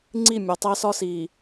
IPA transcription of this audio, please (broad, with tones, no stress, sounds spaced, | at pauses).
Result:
ŋ͡ǀ i˦˨ mʲ ɒ˨ tˤ æ˦ s ɒ˦ s iː˨